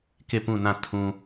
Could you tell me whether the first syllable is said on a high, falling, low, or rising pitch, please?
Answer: falling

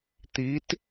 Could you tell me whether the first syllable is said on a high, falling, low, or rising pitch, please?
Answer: rising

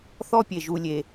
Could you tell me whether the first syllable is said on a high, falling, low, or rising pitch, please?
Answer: high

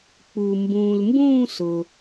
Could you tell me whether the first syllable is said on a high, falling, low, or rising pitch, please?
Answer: low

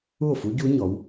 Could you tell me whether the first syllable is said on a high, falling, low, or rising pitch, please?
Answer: falling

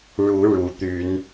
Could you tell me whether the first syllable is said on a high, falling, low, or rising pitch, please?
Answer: rising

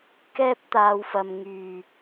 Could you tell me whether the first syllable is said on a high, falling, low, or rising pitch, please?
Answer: high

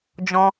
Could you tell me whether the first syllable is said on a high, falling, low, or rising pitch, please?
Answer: high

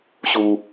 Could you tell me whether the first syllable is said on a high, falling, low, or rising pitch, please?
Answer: low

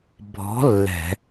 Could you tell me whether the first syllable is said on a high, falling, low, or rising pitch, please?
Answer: rising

